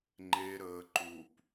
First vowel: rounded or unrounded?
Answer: unrounded